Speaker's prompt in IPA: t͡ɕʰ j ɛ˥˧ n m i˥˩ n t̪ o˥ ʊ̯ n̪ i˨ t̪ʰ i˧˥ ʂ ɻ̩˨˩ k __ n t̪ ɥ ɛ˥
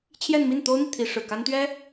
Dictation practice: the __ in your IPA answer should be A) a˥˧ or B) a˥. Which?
B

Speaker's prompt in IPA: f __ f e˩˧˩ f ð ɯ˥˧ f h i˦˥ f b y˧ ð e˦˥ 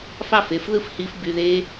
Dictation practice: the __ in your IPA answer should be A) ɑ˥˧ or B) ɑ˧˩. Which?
A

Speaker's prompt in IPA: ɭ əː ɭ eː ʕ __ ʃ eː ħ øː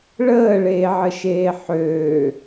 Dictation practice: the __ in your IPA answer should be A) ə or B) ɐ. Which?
A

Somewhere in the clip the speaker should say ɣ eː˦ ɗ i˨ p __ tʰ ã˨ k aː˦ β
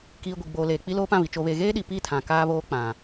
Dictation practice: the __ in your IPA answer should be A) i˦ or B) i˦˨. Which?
B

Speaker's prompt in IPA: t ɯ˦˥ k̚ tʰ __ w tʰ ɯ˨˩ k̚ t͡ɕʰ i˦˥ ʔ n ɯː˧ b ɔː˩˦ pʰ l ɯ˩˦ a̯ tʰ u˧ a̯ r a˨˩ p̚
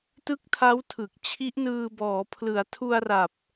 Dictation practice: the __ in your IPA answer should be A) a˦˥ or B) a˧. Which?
A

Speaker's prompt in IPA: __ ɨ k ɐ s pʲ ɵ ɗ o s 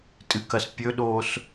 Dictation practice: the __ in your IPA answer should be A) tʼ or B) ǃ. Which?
A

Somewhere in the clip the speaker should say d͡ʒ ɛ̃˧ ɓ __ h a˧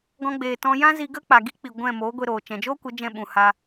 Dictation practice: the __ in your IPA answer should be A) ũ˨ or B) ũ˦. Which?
A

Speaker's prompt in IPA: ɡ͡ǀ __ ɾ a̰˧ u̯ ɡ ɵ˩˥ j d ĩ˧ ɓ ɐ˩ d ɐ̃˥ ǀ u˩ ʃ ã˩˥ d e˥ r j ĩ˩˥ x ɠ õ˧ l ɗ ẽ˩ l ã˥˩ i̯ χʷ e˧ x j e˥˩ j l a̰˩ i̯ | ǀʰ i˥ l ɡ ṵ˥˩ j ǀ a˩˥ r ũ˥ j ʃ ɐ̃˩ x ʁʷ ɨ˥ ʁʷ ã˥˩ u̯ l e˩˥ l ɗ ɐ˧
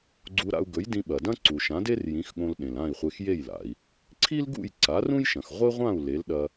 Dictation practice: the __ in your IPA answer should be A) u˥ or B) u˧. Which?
B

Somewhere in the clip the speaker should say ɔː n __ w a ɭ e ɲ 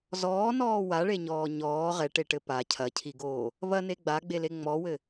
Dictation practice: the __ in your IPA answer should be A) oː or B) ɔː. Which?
B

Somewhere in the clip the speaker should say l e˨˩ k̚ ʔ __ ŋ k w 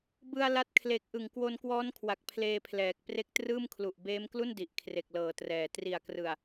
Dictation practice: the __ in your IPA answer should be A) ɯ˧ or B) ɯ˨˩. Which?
B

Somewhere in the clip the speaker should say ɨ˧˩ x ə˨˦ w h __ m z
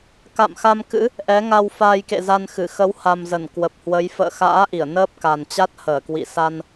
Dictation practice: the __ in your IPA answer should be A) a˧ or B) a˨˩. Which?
B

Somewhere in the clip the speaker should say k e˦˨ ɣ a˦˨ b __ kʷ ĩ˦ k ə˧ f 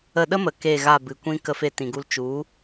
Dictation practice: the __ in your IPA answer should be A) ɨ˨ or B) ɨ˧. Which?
A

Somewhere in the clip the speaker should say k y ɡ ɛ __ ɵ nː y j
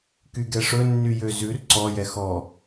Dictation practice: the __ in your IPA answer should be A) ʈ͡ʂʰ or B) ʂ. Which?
B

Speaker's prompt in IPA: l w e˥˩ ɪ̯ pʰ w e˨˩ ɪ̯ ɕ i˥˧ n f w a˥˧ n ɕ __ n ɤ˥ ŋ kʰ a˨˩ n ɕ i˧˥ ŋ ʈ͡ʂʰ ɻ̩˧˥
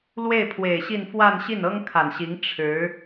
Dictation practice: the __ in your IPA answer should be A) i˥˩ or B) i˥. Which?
A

